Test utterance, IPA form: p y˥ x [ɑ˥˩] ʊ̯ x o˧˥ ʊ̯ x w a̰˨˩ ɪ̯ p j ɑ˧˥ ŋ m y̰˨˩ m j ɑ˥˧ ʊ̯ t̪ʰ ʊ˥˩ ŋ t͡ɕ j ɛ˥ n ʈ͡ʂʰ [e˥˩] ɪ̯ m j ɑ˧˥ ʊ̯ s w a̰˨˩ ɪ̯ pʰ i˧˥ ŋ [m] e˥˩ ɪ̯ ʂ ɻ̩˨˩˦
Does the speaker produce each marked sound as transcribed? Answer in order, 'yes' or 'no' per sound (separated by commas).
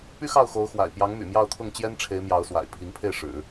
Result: yes, no, no